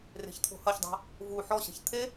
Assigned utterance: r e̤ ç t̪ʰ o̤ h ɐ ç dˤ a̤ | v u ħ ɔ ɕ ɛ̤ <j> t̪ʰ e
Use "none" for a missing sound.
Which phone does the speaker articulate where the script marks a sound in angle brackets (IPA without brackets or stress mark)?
ç